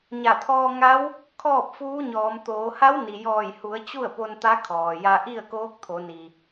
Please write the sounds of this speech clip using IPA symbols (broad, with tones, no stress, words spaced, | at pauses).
ɲa˧˩t̪ʰɔː˧ŋa˧˥w | kʰɔː˥˨p̚fuː˧˥ɲɔː˩˧m t̪oː˩˧ ha˧˥w ni˩jɔː˧˩j hu˩˧ə̯ t͡ɕu˥˨ə̯po˧n t̪a˧˥kʰɔː˩ja˧ ʔi˥˨ə̯koː˧˥k̚ t̪ʰo˩˧ni˩